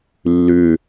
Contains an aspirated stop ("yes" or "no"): no